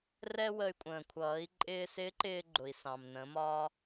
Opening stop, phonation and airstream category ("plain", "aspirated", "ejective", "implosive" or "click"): ejective